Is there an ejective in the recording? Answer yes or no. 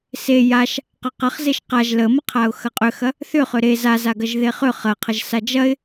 yes